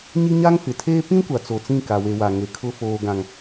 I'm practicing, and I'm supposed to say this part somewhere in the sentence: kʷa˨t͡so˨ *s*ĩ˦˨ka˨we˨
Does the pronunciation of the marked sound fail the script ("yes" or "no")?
yes